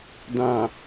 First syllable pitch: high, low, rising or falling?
low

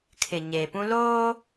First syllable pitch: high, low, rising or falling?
low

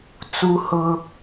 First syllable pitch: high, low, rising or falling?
high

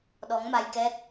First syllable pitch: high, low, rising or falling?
rising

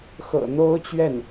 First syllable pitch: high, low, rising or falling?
low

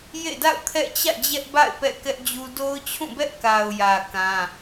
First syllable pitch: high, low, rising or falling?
falling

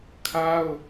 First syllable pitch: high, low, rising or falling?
high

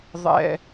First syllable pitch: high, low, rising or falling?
high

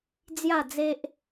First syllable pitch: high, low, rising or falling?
falling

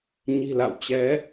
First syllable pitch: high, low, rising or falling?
low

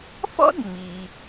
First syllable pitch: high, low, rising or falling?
high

